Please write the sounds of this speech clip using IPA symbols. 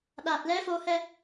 ɗ a˨˩ t̚ l ɛ˧˥ f o˧ h ɛ˧

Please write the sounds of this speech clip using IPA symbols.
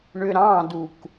ɳ ʏ ɾ ɑ̃ d u k

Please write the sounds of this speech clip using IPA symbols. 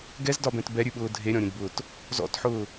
ɡ ɛ z d ɒ b ɛ̃ t b ɛ ɾʲ ʉ ɓ ʊː dʱ e ɾʲ ɔ̃ ɾʲ ẽ d b ʊː t | z ɔ̰ t ħ ʊː

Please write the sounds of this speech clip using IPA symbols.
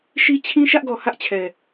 ʃ i˦ t͡ɕʰ ĩ˦ ʃ ä˦ ʔ ɡ ɔ˨ h ä˦ ʔ t͡ɕʰ ɛ˨

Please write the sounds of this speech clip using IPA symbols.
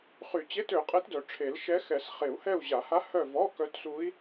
χ y˨˩˦ t͡ɕ e˧˥˧ t ø˨˩˦ qʼ ɛ˧˥ t d œ˨˩˦ ʈ͡ʂʰ e˨˩˦ l ʃ ɛ˧˥ x ɛ˨˩˦ s χ e˨˩˦ u̯ h ɛ˦˨ u̯ ʑ a˨˩˦ h a˧˥ h œ˦˨ v ɔ˧˥˧ k œ˧˥ t s u˧˥ i̯

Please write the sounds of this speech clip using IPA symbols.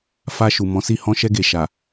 f a˧ ʃ u˨ m ɔ̃˨˦ s i˦˨ h ɔ̃˧ ʃ ɛ˧ ɡ e˨ ʃ a˨

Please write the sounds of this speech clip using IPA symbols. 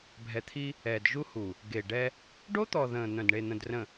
bʱ ɛ˨ t̪ʰ i˦ | ɛ˨ d ʒ u˦ h u˨ | ɡ e˨ ɖ ɛ˦ | ɖ o˦ t̪ ɔ˨ ð ə̃ː˨ n̪ œ̃˨ d ɳ e˨ n̪ ə̃˨ d r ə̃˨

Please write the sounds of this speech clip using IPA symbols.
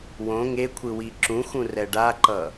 w õ ŋ e kʷʰ ɯ w i ǁ ũ x ũ r ɛ ɖ a ǃ ʌ

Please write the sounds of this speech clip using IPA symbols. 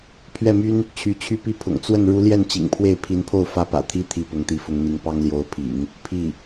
pʰ ɥ ɛ˥˩ m y˥ n | t͡ɕʰ y˧˥ t͡ɕʰ y˥ p i˥ pʰ ʊ̰˨˩ ŋ t͡s w ə˥˩ n ɻ u˧˥ l j ɛ˥˩ n t͡ɕ ḭ˨˩ ŋ pʰ w e˥˩ ɪ̯ pʰ i˧˥ n pʰ o˥˩ ʊ̯ f ä˥ p ä̰˨˩ t̪ʰ i˥ t̪ʰ i˥˩ p ʊ˧˥ ŋ t̪ i˧˥ f ʊ˧˥ ŋ n̪ i˧˥ ŋ p ɑ˥ ŋ l j o˧˥ ʊ̯ pʰ ḭ˨˩˦ ŋ | pʰ i˥˩

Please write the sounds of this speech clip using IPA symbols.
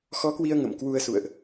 x ɔ˨˦ k w i˧ ə̯ ŋ ə̰˧˨ m k w u˧ ə̯ s ṵ˧˨ ə̯ ʔ

